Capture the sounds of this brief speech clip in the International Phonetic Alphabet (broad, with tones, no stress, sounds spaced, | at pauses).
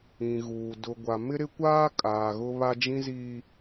ĩ˨ ɣ uː˨ d ʊ˨ ɡʷ a˨ m ɪ˦ ɾ ɪ˦ kʷ aː˦ kʼ aː˨ ɣ ʊ˦ β a˦ d͡ʒ ĩ˦ z i˦